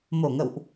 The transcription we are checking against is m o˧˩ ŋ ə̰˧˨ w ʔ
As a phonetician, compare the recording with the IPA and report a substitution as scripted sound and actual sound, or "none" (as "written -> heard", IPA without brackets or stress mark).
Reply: none